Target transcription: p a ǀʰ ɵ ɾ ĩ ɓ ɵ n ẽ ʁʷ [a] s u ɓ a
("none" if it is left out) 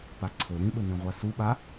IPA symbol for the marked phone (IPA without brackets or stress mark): a